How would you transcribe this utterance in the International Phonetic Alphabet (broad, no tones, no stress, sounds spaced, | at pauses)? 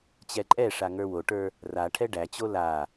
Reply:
t͡ɕ ɛ ǃʼ ɛ ʂ a ŋ ə˞ w o ʈ ə˞ | r a ʈʰ ɛ ɖ æ t͡ɕ o l a